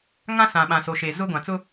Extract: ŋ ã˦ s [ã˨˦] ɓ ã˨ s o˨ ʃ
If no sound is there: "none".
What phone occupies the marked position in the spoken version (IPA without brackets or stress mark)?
ã˨